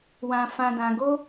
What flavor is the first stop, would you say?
plain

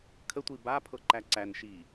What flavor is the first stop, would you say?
aspirated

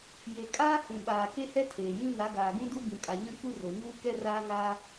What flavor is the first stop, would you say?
ejective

